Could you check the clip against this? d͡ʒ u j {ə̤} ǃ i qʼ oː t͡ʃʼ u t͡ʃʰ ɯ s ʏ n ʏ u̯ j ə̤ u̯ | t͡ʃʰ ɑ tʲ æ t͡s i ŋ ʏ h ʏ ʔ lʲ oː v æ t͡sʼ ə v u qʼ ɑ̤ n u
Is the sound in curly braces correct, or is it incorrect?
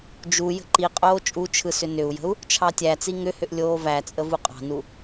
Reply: correct